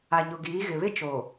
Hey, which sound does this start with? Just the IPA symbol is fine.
a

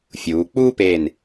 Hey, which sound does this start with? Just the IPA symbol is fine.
fʲ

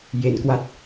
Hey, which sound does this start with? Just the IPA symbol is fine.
j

